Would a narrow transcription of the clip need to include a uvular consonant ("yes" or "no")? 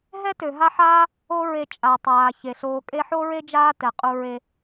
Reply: yes